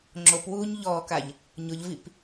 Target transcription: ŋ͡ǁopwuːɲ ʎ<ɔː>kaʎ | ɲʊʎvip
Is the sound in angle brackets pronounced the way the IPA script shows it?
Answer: yes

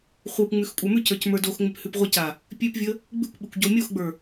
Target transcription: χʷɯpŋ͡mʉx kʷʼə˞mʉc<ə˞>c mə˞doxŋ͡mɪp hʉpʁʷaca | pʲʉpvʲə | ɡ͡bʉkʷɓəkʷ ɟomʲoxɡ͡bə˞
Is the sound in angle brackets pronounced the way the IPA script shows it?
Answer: yes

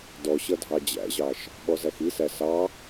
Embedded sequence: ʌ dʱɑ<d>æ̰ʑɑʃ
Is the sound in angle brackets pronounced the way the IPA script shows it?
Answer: no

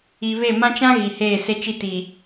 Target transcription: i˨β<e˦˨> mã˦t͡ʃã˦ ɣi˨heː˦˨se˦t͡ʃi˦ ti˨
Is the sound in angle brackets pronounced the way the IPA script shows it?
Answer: yes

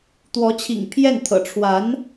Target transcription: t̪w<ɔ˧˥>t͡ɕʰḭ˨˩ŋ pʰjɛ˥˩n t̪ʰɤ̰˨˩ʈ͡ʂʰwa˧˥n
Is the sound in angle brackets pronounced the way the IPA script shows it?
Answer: yes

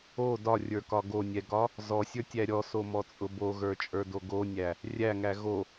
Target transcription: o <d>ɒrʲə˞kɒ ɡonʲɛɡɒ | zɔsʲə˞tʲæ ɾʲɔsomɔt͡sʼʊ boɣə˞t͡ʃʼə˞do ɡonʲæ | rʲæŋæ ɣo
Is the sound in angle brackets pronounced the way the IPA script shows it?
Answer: yes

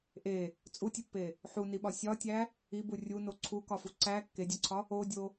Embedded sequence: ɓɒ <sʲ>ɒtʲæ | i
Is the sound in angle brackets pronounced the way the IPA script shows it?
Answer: yes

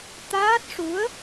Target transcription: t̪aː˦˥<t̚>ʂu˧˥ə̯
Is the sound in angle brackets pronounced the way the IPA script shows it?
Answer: yes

